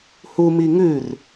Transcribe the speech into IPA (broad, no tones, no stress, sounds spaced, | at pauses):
h u m i ŋ ʉ r